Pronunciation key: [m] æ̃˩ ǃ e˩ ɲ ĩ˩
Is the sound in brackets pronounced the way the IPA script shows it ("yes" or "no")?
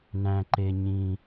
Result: no